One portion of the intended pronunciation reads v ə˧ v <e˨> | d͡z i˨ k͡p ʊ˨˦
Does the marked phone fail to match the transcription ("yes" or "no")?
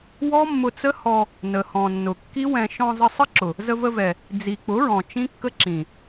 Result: yes